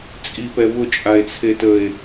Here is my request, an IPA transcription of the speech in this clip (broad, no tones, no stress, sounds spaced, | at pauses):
t͡sʼ i p ɛ β ʊ t͡ʃʼ a e̯ t͡sʰ e t ə e̯